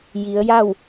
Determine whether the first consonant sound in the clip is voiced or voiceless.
voiced